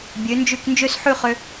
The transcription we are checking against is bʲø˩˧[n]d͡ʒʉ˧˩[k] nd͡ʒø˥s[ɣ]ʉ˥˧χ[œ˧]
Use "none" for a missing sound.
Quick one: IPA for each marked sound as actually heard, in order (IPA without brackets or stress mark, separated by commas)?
n, k, ħ, ø˧